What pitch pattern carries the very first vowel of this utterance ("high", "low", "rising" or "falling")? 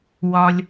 high